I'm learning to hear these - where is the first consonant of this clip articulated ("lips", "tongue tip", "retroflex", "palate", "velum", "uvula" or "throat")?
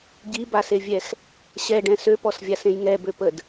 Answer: palate